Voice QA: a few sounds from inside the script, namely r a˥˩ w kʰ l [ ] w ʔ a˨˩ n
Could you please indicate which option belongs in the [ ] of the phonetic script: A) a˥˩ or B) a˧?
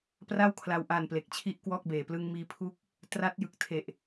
B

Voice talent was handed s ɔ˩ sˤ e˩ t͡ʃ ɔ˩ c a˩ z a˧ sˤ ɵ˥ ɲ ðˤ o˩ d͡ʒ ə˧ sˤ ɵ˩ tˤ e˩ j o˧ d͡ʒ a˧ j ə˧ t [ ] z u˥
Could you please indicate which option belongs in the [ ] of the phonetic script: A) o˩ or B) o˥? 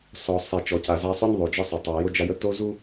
B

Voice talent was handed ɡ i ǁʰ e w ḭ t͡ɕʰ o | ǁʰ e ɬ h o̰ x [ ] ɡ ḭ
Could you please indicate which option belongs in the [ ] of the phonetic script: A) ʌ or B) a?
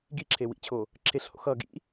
A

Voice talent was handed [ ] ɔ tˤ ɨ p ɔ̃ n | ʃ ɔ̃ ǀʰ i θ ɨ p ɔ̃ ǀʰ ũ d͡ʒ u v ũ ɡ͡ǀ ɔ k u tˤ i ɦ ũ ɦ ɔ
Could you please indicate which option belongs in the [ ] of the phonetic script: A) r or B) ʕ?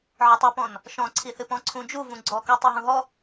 B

